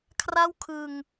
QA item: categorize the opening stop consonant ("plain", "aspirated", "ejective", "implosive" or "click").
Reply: aspirated